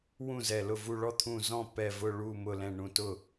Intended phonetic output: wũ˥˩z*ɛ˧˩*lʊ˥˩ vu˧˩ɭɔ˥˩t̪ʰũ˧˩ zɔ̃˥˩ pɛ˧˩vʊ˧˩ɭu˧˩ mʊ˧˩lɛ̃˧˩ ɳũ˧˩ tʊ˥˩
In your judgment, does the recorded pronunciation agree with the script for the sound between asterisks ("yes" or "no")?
yes